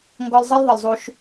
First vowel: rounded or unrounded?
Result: rounded